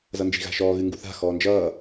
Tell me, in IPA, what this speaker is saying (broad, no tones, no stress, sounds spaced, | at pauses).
z ʌ n d͡ʒ i̤ ɣ a̤ ʃ ɔː ɣ ɨ ŋ ɡ u θ a̤ x ɔː n d͡ʒ ʌː